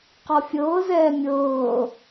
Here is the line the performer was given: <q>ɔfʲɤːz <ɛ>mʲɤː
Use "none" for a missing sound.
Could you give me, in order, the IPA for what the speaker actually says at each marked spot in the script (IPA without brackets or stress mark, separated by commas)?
q, ɛː